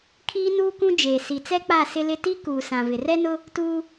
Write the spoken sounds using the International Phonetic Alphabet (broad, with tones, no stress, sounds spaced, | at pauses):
kʰ iː˦ n uː˦ k ũ˦ d͡ʒ eː˨ s i˨ t͡s ɛ˦ k͡p a˦˨ s ɪ˦ l ɪ˦ t i˦ k uː˨ s ã˨ v ɪ˨ r ɛ˦ n ʊ˦ | t uː˦